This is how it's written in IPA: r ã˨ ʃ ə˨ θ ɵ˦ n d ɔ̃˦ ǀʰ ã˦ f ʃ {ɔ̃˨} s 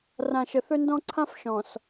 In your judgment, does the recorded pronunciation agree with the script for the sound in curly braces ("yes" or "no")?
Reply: yes